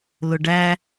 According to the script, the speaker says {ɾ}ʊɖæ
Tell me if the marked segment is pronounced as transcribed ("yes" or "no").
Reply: no